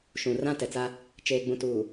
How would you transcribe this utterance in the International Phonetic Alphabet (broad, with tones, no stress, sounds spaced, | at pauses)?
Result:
ʃ ũ˨ r ã˦ t ɛ˨ t͡s a˦ | t͡ʃ eː˨ ɡ͡b ũ˨ t uː˨